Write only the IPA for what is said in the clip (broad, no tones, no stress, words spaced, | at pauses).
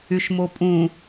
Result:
yʃmopʼũ